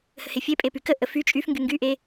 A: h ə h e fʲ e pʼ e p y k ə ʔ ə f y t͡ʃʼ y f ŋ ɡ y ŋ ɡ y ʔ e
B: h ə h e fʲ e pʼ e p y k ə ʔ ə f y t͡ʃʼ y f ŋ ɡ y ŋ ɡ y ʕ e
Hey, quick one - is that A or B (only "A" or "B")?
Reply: A